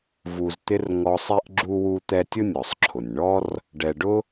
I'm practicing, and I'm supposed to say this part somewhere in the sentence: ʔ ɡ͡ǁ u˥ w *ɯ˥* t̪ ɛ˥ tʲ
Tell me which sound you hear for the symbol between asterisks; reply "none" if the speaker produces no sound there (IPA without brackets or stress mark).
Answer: u˥